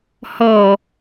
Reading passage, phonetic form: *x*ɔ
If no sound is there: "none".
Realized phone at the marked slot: h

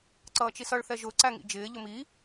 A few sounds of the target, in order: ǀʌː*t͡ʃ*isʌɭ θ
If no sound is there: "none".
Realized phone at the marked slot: t͡ʃ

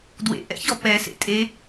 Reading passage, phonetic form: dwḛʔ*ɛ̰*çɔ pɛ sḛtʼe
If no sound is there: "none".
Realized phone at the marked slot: ɛ̰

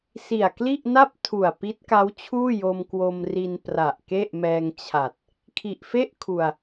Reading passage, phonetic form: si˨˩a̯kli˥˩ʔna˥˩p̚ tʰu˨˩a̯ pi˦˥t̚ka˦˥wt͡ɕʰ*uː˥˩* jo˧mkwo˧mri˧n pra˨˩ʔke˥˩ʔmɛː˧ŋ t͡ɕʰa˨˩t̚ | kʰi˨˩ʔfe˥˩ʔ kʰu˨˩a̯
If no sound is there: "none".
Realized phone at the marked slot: uː˥˩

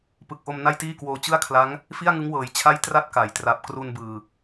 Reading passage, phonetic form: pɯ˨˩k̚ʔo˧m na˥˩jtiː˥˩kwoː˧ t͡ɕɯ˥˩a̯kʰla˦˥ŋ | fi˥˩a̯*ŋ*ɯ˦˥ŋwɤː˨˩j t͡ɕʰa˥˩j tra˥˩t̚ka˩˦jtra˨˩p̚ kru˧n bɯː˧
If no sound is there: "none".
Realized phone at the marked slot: ŋ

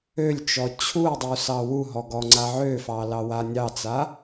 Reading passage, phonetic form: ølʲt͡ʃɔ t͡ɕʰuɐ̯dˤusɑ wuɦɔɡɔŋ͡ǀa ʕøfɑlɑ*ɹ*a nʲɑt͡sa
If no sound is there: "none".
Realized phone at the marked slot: w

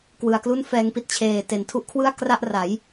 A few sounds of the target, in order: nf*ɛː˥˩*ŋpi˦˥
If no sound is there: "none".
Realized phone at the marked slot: ɛː˧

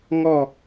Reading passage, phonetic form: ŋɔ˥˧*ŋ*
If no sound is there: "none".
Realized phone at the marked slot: none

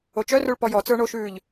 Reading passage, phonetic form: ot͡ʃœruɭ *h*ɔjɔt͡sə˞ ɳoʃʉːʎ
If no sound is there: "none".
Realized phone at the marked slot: p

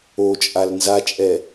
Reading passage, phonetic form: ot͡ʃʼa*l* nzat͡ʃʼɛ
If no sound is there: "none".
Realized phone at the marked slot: l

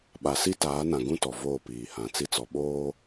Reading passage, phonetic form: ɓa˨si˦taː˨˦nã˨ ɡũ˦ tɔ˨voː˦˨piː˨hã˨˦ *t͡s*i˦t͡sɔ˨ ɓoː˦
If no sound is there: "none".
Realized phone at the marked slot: t͡s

